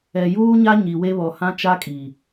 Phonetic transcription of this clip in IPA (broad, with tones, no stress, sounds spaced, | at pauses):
ɛ˨ j uː˦ ɲ a˦ ɲ i˨ w e˦ β ɔ˨ h ã˦ t͡ʃ a˦ kʼ i˨